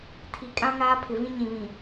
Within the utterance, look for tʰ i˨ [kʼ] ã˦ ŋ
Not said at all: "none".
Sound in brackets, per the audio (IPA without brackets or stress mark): kʼ